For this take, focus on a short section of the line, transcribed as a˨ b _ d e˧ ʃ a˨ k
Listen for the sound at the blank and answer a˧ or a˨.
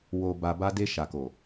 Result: a˧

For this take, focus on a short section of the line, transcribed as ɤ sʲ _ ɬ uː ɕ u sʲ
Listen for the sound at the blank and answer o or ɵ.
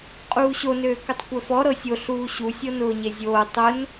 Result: o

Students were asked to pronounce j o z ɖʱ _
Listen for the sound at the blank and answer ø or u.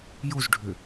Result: ø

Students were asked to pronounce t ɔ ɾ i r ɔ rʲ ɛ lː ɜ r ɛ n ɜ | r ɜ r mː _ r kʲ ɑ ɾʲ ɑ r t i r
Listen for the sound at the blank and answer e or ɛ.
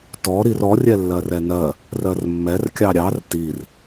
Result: ɛ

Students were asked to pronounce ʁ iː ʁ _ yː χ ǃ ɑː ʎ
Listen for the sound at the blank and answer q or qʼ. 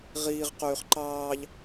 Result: q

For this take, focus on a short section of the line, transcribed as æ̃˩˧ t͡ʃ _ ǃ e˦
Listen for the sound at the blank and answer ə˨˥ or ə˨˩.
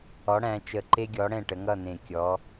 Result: ə˨˩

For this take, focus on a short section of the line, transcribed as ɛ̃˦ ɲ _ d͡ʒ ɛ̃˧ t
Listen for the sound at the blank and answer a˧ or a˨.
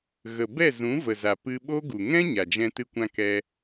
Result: a˨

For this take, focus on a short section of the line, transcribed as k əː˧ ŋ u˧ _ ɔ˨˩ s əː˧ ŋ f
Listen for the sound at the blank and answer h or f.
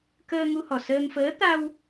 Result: h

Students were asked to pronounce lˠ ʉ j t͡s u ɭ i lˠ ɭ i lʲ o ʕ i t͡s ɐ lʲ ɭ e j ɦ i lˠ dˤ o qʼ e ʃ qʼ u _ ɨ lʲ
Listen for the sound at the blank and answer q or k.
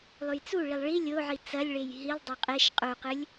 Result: q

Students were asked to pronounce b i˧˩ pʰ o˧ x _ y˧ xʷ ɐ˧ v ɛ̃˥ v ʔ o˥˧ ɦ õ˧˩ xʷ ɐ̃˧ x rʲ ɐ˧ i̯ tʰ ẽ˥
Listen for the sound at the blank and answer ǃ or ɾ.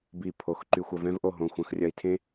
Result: ǃ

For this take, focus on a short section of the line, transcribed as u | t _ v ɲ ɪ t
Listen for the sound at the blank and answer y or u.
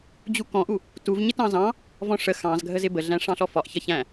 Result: u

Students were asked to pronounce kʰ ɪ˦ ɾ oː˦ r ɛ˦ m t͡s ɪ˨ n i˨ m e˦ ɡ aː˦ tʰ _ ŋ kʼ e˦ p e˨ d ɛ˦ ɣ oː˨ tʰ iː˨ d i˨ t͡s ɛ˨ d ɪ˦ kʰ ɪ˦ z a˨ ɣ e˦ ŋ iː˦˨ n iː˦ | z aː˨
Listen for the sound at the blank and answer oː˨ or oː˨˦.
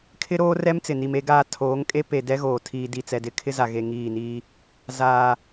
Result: oː˨˦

